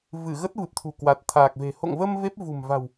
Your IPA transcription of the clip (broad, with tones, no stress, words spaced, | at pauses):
vɨ˧˩ ɣə˦˥t̚vɨ˨˩p̚t̪ʰṳ˨˩ kwa˨˩t̚t̪ʰaː˨˩k̚ve̤˨˩ ho̰˧˨ŋvə˧m ve˦˥p̚vṳ˨˩mva̤˨˩w